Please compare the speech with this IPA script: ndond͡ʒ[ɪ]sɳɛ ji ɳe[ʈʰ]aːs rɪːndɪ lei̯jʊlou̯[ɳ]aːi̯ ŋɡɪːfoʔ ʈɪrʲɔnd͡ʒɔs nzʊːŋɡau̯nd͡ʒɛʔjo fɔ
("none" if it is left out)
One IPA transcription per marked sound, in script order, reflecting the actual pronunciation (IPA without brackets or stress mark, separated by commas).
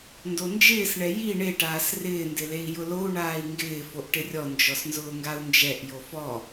ɪː, ʈ, ɳ